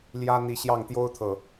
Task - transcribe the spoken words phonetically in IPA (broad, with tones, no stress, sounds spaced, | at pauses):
l j ä˦ n̪ i˨˦ ɕ j ɑ˥˨ ŋ t̪ j o˦ ʊ̯ t̪ʰ ɤ˨˩